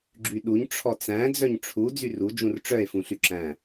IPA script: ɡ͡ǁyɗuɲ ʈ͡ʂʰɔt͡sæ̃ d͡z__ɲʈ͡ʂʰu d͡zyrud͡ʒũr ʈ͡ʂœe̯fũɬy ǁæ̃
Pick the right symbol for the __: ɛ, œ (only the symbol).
œ